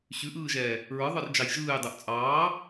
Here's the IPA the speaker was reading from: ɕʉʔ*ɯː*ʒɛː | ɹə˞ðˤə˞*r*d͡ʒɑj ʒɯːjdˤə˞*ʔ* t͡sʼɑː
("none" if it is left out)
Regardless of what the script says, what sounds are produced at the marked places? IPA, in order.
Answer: ɯː, r, ʔ

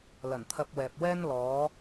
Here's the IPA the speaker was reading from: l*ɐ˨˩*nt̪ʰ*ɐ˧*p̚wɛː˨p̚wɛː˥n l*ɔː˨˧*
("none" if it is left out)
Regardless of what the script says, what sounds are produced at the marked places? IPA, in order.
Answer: ɐ˨˩, ɐ˧, ɔː˨˧

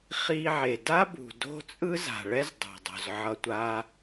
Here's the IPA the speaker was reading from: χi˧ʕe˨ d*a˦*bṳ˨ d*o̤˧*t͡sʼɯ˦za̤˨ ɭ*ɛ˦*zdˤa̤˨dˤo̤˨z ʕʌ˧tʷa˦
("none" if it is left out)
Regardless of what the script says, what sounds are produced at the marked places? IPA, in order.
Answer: a˦, o̤˦, ɛ˦

